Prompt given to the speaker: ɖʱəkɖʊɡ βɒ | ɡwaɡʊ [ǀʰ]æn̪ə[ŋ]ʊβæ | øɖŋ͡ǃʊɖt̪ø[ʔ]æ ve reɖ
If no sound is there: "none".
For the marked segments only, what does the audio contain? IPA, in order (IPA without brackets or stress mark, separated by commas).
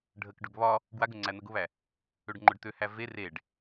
ŋ͡ǀ, ɡ, h